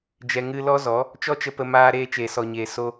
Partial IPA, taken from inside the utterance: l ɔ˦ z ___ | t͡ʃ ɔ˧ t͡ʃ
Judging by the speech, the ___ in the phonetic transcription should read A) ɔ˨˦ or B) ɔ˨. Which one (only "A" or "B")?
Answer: A